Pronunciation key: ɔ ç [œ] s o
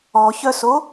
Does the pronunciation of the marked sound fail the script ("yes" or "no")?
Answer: no